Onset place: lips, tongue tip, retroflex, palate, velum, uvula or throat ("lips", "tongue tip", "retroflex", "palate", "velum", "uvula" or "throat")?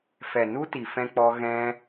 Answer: lips